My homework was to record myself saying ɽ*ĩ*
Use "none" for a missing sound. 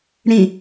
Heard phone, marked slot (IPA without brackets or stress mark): ĩ